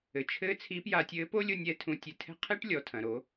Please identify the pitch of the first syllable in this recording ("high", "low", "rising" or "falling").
low